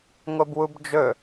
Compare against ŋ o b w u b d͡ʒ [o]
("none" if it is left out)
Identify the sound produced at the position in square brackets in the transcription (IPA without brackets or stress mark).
ɵ